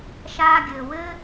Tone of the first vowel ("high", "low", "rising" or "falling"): high